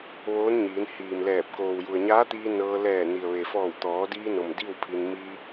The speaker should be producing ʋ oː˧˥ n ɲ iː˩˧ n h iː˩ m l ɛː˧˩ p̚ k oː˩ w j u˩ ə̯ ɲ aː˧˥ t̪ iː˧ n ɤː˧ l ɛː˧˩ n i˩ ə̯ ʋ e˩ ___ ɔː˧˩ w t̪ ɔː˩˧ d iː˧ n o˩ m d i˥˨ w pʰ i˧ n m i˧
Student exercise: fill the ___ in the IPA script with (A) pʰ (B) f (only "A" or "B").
B